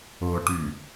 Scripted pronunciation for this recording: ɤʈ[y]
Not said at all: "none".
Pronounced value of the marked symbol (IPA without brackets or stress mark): y